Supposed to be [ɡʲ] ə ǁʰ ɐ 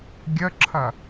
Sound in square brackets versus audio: correct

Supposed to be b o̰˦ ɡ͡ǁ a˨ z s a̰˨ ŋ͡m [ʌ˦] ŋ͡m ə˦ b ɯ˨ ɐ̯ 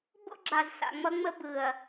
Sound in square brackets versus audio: correct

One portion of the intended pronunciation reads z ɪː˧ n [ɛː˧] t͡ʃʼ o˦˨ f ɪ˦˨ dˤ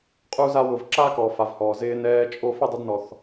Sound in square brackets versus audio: correct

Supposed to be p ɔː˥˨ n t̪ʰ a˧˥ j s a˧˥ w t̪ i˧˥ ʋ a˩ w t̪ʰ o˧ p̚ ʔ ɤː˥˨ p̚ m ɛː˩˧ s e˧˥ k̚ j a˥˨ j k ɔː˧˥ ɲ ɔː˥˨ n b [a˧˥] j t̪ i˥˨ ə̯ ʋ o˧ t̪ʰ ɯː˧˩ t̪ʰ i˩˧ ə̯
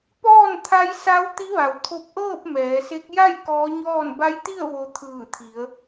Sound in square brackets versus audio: correct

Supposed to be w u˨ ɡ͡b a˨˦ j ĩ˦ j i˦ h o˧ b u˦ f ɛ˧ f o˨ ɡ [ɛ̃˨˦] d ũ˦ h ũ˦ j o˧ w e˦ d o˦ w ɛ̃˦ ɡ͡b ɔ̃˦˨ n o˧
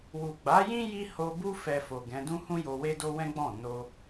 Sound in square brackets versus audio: correct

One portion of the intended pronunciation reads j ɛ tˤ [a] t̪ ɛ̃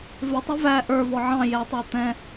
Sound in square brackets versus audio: incorrect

